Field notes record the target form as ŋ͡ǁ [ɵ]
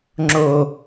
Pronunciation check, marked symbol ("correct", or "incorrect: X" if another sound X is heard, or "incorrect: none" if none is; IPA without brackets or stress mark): incorrect: o